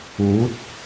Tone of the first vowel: rising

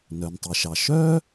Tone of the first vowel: low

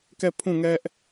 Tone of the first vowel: falling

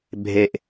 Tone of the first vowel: low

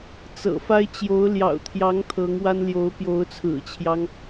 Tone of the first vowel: low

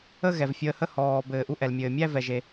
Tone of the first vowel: falling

